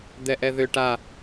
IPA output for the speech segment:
d̪ ɛ ʔ ɛ ð ʏ ʈ a

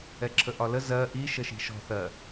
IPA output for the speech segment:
ɛ ǁʰ ə ʔ ɒ l ə z ɜ ʔ i ʃ ə ʃ i̤ ʃ ɔ̤ θ ɜ

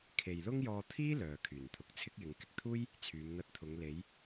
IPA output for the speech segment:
kʰ e˨ j l ʊ˥ ŋ j ɔː˧ t̪ʰ iː˥ l œː˨ kʰ yː˨˩ n t̪ʰ ʊ˨ k̚ t͡sʰ ɪ˥ k̚ j ɪ˨˧ ŋ k ɪ˨ k̚ t̪ʰ uː˥ j | t͡sʰ yː˨˧ m n̪ ɐ˧ t̚ t̪ʰ ʊ˨˧ ŋ l e˨˧ j

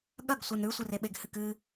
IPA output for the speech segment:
ɠ ɐ ɡ sʷ ɨ n ɾ ʉ sʷ ɨ r e ɓ e ɡ h ɨ k ɨ

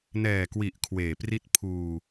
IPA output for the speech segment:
n ɛː˨˩ k w i˨˩ ʔ kʰ w eː˨˩ p r i˦˥ t̚ pʰ uː˧

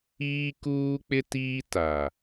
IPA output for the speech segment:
iː˦ k uː˦ k͡p ɪ˦ t iː˦ t a˨

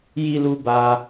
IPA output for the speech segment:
j i˧ l u˧ b a˧

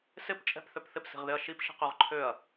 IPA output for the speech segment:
s ɪ p t͡ʃʼ ɛ̤ p θ ø p θ ɪ p s i̤ ʁ ð ɪ ɐ̯ ʃ i p ʃ i̤ q ø ʁ ǃʰ ø ɐ̯

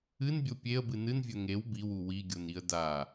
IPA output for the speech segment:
ɨ n bʲ o pʲ e ə̯ b ɨ n ɨ n vʲ ɵ ŋ e w b i w u w i ɡʲ o n i ə̯ d a

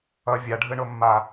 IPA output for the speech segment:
ʌ vʲ a ɖʱ ɯ ɳ o mː a

